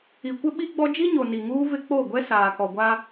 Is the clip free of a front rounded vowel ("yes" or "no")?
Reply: yes